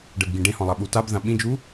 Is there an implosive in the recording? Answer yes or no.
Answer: yes